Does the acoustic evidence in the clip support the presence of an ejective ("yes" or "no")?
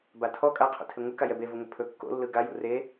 yes